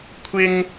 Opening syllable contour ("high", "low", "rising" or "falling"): high